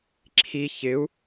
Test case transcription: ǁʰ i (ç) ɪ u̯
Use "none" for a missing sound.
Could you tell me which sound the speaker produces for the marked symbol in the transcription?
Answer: ç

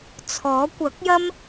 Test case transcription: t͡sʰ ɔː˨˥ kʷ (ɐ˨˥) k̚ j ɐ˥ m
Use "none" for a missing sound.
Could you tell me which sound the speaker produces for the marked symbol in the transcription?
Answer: ɐ˨˥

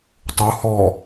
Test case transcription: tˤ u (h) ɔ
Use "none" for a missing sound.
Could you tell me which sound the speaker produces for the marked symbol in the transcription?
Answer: h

